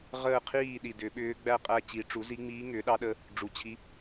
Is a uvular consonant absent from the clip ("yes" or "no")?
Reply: no